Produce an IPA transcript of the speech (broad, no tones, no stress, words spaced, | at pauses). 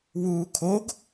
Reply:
wuːkʰoɡ